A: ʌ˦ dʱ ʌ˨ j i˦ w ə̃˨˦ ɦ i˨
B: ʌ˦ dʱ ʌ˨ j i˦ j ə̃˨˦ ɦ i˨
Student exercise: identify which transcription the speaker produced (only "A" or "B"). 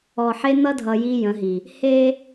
B